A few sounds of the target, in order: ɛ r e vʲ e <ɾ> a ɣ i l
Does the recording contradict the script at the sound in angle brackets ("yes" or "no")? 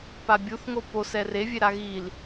no